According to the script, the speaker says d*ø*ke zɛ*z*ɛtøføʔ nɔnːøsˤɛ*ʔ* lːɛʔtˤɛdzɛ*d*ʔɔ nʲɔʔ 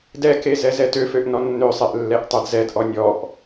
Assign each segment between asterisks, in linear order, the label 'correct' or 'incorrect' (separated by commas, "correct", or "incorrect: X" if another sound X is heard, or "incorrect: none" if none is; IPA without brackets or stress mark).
incorrect: ɛ, correct, correct, correct